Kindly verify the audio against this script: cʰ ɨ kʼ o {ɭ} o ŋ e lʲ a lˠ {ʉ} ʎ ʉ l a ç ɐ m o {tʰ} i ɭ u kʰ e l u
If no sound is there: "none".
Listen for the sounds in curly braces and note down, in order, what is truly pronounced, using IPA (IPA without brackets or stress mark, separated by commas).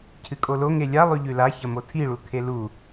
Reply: l, ʉ, tʰ